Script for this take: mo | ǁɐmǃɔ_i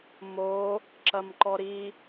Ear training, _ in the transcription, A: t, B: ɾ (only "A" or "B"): B